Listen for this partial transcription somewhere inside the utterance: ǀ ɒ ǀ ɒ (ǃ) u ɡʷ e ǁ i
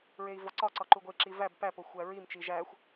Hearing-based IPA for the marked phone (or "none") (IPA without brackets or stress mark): ǃ